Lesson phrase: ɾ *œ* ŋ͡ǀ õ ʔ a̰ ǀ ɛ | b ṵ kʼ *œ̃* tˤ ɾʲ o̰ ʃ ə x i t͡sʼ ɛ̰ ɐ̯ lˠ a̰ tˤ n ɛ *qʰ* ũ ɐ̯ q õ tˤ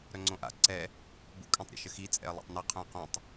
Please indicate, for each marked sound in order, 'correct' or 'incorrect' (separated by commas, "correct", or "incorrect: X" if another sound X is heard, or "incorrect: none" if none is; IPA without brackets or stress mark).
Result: correct, correct, correct